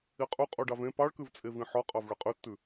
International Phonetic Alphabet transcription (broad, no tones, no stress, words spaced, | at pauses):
iqʼu qʼuɖɑvẽ pɑɭkʉvt͡sʼevĩ ħɔqʼɑv ɭeqʼʉtːʉ